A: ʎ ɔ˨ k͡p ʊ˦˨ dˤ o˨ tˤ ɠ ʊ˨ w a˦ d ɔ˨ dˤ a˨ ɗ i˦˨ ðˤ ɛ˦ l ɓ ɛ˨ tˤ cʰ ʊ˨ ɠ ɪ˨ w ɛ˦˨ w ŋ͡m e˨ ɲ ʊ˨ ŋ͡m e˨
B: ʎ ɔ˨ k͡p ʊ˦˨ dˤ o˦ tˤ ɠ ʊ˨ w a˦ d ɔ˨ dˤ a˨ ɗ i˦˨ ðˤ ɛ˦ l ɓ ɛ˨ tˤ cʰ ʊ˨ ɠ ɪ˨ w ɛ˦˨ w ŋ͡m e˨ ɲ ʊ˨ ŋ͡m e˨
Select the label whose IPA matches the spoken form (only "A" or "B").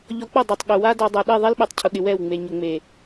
A